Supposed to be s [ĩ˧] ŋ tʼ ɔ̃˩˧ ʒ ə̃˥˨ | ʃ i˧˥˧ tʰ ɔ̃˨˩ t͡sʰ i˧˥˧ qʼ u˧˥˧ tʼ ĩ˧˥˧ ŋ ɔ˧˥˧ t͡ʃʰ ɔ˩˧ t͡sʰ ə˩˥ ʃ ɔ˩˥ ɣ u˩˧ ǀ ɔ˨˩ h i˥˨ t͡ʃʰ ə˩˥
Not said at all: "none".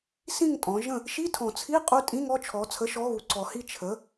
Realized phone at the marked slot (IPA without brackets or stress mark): ĩ˥˨